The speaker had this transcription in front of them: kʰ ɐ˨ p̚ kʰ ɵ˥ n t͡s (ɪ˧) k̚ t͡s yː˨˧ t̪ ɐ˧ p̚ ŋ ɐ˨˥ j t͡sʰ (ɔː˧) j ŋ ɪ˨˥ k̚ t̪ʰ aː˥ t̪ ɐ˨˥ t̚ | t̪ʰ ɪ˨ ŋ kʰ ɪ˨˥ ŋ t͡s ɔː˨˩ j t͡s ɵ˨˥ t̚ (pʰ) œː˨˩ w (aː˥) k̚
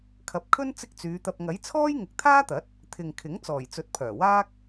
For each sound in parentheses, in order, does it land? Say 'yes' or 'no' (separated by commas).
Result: no, no, yes, yes